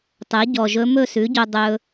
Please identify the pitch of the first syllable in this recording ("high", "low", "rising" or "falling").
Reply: rising